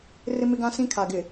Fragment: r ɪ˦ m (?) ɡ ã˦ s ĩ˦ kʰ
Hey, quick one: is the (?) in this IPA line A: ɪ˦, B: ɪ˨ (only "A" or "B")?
A